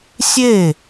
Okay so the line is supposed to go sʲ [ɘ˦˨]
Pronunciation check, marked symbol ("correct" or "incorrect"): incorrect